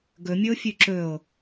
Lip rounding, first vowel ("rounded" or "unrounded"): rounded